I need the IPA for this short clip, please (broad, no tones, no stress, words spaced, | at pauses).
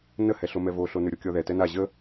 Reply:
nəhɛɬo mɛvoɬonʉ ɾʲokʲɔðɛ tɛna ʑə